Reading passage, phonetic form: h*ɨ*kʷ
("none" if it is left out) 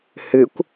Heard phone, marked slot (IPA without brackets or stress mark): ɨ